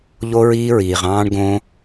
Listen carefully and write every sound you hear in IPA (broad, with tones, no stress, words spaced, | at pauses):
ʎo˧ɹiː˧ɹiː˩ʁ ɑ̃ː˧ɳɡõ˧